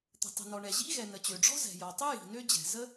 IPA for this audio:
t̪ə̤˩tˤə̤˩nɔ˩ɳɛ˩ ʑḭ˥ɣɛ˩ nə˩t͡ɕø˩ ɖ͡ʐɔ̤˥zɛ̤˩jɔ˩tˤʏ˥ ji̤˩nø˥d͡ʑɛ̤˩ zə˥

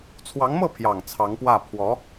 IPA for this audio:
t͡sʰwɑ˧˥ŋmɤ˥˩pʰjɑ˨˩ŋ t͡sʰɑ˧˥ŋpwä˥˩ pʰwɔ˧˥

